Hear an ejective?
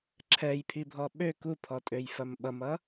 yes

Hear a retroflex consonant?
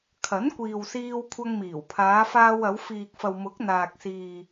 no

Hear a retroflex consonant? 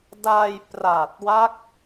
no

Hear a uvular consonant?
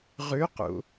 yes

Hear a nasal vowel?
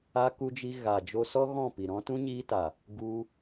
yes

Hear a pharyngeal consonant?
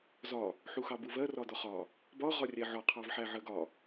yes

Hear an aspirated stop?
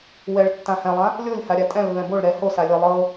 no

